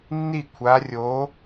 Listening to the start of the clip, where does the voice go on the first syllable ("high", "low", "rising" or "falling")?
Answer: falling